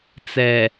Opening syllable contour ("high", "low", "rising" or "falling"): low